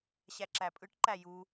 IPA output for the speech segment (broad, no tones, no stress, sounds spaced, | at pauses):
ɕ æ ǁ æ pʼ ɯ ʈ ǃ æ j u